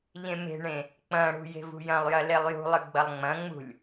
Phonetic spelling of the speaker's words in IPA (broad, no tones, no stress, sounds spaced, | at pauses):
ʎ ẽ m e̤ ɳ ẽ | k͡p ɐ̃ ɽ ṳ j e̤ v ṳ j ɐ̃ lˠ j ɐ l e lˠ j ṳ lˠ ɨ ɡ͡b ɐ lˠ ŋ͡m ɐ̃ ŋ͡m ṳ lʲ